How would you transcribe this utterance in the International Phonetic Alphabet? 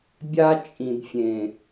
bʲa˦t͡ʃʼĩ˨dfʲẽ˨

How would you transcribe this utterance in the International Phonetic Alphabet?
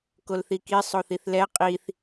kolθiki sˤoθiθlɛ qʼiθ

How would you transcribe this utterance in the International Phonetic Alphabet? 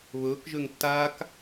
βɵːkʒøŋ tːaːk

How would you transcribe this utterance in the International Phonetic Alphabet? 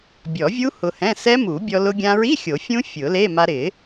bʲɔ˨˩˦vʲu˦˥ hʊ˧hɛ̃˧˥˧ sɛ˦˥mu˨˩˦bʲɔ˧ lʊ˧ɡʲã˧ɹi˧˥˧ xʲo˨˩˦fʲũ˦˥ fʲʊ˨˩˦le˧˥˧ ma˧ɾɪ˨˩˦

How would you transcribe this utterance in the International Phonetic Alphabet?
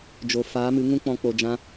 d͡ʒo˨ faː˨˦mɨ˨˦ ŋũ˦k͡pɔ̃˧ k͡po˧d͡ʒã˦

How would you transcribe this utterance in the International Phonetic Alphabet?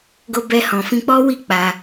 ɡo˧bɛ˧hɔ̃˨ fĩ˧k͡pɔ˦wi˦˨ k͡pa˧

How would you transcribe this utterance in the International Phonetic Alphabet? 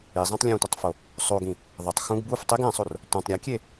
izˤɛ̃tˤ lʲõtʷʌtˤfo | sˤoɡĩ | ðˤetˤ xũɡ buf tˤeɡ ɛ̃sˤor | tʷãtˤ ɾʲakʲe

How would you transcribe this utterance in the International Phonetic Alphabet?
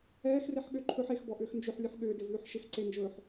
ɛːxreħ ɠʏ ǃʰɵħ exbɔʔʏːx nd͡ʒʏħlʲʉħ ɠʏːdɪvʉːħ ʃɪx ǀend͡ʒɵːħ

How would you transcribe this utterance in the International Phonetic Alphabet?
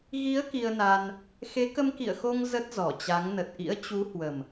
ɣi˨˦ə̯ ki˧ə̯na˧n | xe˨˦kə˧mkḭ˧˨ə̯xo˧ŋ zə˦˥t̚zɔ˧˩t͡ɕa˨˦ŋ nə˨˩t̚ʔḭ˧˥ə̯t͡ɕu˨˦hwə˨˩m

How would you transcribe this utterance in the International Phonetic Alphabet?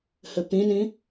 hɘpĩnĩ

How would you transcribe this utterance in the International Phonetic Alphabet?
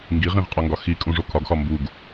ŋɡiʁĩʁqʼɒŋɡɒ xi kʼũʐokʰɒɡxɒ mbuɡ

